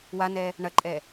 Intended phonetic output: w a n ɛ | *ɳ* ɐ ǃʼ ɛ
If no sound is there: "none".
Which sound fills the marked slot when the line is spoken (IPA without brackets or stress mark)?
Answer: ɳ